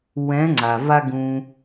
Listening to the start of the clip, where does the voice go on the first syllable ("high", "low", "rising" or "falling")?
rising